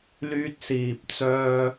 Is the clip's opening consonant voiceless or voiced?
voiced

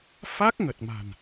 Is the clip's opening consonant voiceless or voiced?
voiceless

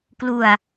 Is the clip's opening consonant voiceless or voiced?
voiceless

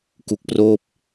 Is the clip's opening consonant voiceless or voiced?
voiceless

